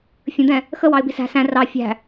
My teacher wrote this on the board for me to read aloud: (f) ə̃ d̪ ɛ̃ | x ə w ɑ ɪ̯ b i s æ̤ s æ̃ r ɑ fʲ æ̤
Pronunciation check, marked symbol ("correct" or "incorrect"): incorrect